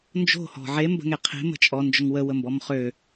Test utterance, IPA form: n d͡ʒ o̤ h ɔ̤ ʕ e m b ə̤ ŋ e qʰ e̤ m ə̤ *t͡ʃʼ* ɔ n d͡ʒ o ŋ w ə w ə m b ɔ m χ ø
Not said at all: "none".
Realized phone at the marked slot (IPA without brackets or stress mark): t͡ʃʼ